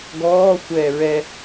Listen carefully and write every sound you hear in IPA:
ɡɔː xʷɛːɹɛ

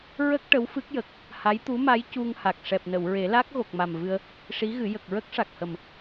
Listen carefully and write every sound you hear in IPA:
ɹə˦˥k̚ ʈə˧˥wfɨ˦˥k̚jə˨˩k̚ | ha˧˥jt̪u˧˥ma˧˥j cu˧ŋha˨˩k̚ ʂɛ˨˩p̚nə˨˩˨wɹe˨˩˦la˦˥k̚ ɣo˨˩k̚ma˨˩mvɨ˧ə̯ | ʂi˧˥ɣɨ˨˩˦ jə˨˩k̚ɹə˦˥k̚ʂa˨˩k̚hə˨˩m

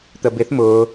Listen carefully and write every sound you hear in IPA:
t̪əbɪθ mʊː

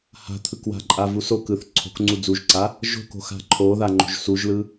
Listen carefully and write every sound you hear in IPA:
ha̤t̪ʰɯkwa̤ǃʼa vuso kɯθ ǀʰo̤kŋ͡ǀu d͡zuʒǀa | ʒo̤ko̤xa̤ ǃʰoða ŋ͡ǃo̤ʒsuʒlɯ

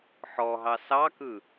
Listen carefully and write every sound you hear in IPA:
ħɔɦɑ sɑkɯ

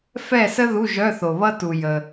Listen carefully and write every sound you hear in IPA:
fɛ˥˨sə˥ ðu˧˥˧ʒœ˧˥˧θo˨βʌ˥ tu˨jə˨

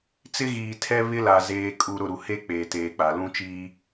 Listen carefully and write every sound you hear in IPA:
t͡sɪ˦ɣiː˨tʰɛ˦ βɪ˦la˨ zeː˨kʼu˨ ɾʊ˦˨ɾu˨ he˦ k͡peː˨teː˨k͡pa˨ lũ˦t͡ʃiː˦

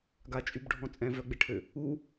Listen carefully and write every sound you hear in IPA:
ɡat͡ʃʼybɖʱɔ̃ t͡sʼɛ̃vœɡ͡beʈʰø | u

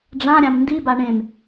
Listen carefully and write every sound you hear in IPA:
ɖ͡ʐãɾʲãm ndiba ɳẽm

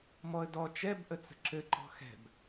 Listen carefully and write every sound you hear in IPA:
mɔə̯dɔ t͡ʃɛbʔət͡sə̤ ǁɘǃɔ̤ xɛ̤b

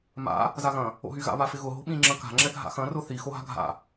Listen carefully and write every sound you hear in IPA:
ma̰ | zaɣɐ̃ | o̰ɦyɣa̰ βafɪɣʊ ɦo̤ɓĩ ŋ͡ǁɐ̃ka̤ ŋ͡ǁɛɡʱa̰xɐ̃ rʊθi xoɦa̤ɡʱa̰

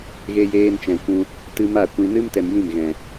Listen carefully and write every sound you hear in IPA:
ɣe˦jeː˦n t͡ʃɛ̃˨kʷũ˧ | tɨ˦ ma˦˨kʷĩ˧ nɨ˦mtɛ˨m jĩ˦˨mɣɛ̃˨

